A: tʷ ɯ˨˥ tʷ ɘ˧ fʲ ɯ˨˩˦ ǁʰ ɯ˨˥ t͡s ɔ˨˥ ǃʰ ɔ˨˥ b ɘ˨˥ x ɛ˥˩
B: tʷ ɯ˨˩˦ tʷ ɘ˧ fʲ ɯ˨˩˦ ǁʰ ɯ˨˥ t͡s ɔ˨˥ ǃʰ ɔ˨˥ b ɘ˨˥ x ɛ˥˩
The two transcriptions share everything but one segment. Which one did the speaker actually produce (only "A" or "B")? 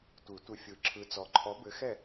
B